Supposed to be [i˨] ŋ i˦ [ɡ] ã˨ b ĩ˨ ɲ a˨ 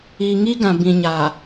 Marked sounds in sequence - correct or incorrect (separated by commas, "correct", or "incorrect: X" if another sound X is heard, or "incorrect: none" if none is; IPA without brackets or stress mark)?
correct, correct